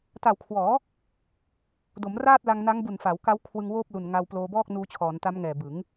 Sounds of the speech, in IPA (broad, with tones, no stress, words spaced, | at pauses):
ta˨˩wkʰwɔː˩˦ | do˩˦mraː˥˩t̚la˧ŋ na˦˥ŋbu˨˩nfa˩˦wka˦˥w kʰwɯ˧ŋwoː˥˩p̚lu˨˩n ŋa˧w ploː˧bɔː˥˩k̚nuː˧ t͡ɕʰɔː˩˦nta˦˥mŋɛː˨˩ bɯ˩˦ŋ